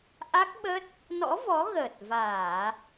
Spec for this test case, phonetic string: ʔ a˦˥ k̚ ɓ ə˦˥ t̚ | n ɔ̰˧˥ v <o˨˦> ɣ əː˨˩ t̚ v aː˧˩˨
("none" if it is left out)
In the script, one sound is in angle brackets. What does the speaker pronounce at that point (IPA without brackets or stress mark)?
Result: ɔ˨˦